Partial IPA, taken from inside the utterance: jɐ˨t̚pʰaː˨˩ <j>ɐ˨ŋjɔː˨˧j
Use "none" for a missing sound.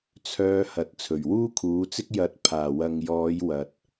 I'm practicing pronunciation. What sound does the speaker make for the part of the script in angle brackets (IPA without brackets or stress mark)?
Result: w